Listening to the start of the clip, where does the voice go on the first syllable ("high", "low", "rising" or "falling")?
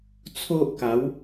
high